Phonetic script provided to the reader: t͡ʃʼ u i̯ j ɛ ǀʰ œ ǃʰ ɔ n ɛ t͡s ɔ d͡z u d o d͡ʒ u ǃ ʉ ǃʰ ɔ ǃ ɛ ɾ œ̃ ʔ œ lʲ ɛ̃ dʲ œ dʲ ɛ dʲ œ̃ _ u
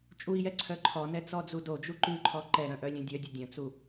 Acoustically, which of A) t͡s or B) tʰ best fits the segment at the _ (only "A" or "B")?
A